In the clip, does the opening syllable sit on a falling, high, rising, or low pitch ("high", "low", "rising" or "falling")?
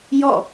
falling